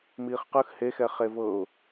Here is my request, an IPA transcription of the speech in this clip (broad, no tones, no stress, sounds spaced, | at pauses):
m iː χ q ɯ x h e x ɛ χ e v ɤ ʊ̯